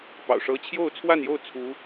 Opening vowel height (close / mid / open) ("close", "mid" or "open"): open